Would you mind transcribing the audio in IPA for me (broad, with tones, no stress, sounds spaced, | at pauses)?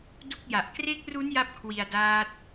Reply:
d u˥˩ k̚ j a˨˩ ʔ k r e˦˥ k̚ r u˦˥ n j a˥˩ p̚ kʰ w i˧ a̯ d aː˦˥ t̚